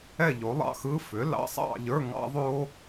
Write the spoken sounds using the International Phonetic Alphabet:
ɛ˥˨ ʎ o˩˥ lˠ ɑ̰˧˥˧ x ɯ˧˥˧ f ʏ˩˥ l ɑ̰˧˥˧ sˤ ɑ̰˥˨ ʎ ə˞˧˥˧ ŋ ɑ̰˦˥ ðˤ o˦˥

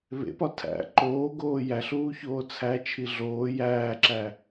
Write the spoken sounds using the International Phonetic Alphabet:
β ḛ p ɒ tʰ æ̰ ǃ oː ɡ oː j æ ɬ uː ç oː t͡sʰ æ t͡ʃʰ i ɮ oː j æː ǁ æ

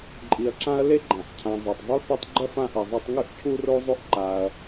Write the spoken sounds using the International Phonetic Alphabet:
ǃʼ i˨ ɐ̯ ǁ ã˦ ɐ̯ l e˥ ɡ͡ǃ ã˩ ʔ cʰ ã˨ zˤ ʉ˩ tˤ zˤ u˥ θ ɐ˦ tˤ ɡ͡ǃ ɐ˥ f ã˦ ʔ ɐ˨ zˤ ɐ˦ tˤ ŋ ʉ˦ ʔ cʰ u˥ r o˥ zˤ o˥ ʔ ǃ a˨ ɐ̯

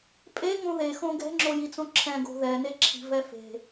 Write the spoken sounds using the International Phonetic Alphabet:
pʼ e ŋ õ ð e x õ ɡ ɛ̤ ŋ͡ǁ o j i t͡s õ ǁʰ ɛ̃ ɡ o̤ ð ɛ n e ǁʰ i̤ v ɛ f e̤

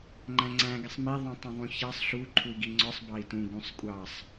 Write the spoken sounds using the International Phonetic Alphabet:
ŋ͡ǃ æ̃ ŋ͡ǀ æ̃ ɡ ɪ sˤ m i ðˤ ũ tˤ ũ ðˤ ũ ç ɑ sˤ ɬ u ǃʰ u i̯ ɡ i ŋ͡ǀ ɔ sˤ b ɑ i̯ t ũ ɡ ũ sˤ kʷʼ ɑ sˤ

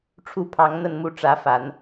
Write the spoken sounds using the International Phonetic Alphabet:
ʈ͡ʂʰ u˥˩ pʰ ɑ˧˥ ŋ n̪ ə˥˧ n m u˥˩ ʈ͡ʂ ä˧˥ f a˨˩˦ n

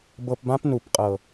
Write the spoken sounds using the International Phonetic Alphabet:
b ɤ˨ p b ã˦ p n u˨ p qʼ ɤ˨

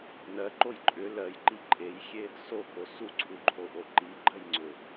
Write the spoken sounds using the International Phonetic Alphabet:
n ɜ ǃ o j ǃʼ ʏ l ɜ j ǃ i ǃʼ e j xʲ e | s o k o s u ǀʰ u ǃʰ o ʔ o ǃ i ɡ͡ǃ ɜ j ŋ͡ǀ ʏ

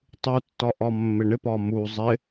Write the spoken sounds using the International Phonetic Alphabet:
tˤ u tː ɒ ʔ ɒ mː ɪ ɳ ɪ p ɒ m u zˤ ɪ

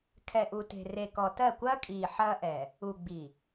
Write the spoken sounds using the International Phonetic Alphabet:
kʰ ɛ˨ ʔ u˨ t e̤˨ r e˨ k ɔ˨ t ɜ˦˨ kʷ ɐː˦ kʼ iː˨ ħ ɐː˦ ʔ ɛ˨ | u˨ ɡ͡b i˨

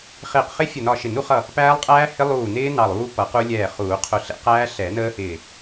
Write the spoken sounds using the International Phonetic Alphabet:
χ ɪː˧˩ q χ ɪ˦˥ fʲ ə˧˩ n ɒ˧˩ ʃ ɪ˨˩˦ n u˨˩˦ χ ʌ˧˩ | p æː˦˥ lˠ qʼ æː˦˥ h ɪ˦˥ lˠ uː˧˩ n ɪː˦˥ n ɑ˧˩ lˠ uː˦˥ p ʌ˨˩˦ q u˦˥ lʲ ɛː˧˩ χ uː˨˩˦ qʰ ʊ˧˩ ɬ ɛ̰˦˥ q æː˦˥ ɬ ɛ˨˩˦ n əː˦˥ h ɪː˧˩

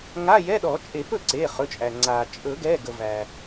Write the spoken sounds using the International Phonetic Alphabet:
ŋ a˧˥˧ j ɛ˧˥˧ ɗ ɔ˨˩˦ t͡ʃʼ e˨˩˦ p ɵ˥˩ ǀ e˩˧˩ χ ɵ˩˧˩ t͡ʃʼ æ˩ ŋ͡ǀ a˩ t͡ʃʼ ɵ˨˩˦ ɡ ɛ˩˧˩ ɡ ə˩ v æ˩

